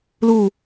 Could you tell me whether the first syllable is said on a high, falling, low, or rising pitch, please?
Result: falling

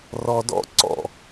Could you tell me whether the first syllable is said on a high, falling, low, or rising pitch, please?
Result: low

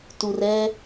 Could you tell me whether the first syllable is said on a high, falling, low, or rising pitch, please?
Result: low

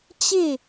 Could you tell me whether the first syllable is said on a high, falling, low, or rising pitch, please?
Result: falling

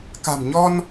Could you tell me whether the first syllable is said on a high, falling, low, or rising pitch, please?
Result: low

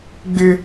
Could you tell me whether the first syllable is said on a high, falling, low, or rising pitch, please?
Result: high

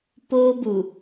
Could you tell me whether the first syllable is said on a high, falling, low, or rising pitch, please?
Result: high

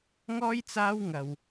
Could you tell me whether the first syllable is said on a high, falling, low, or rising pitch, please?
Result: high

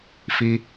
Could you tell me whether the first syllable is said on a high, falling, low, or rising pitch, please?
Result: high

